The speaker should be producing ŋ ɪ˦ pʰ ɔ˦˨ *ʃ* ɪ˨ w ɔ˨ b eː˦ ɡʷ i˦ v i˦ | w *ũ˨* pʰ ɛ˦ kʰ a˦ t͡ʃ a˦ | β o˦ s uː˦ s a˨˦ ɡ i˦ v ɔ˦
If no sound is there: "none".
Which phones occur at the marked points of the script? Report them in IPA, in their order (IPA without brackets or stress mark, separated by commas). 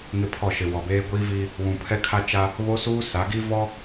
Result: ʃ, ũ˨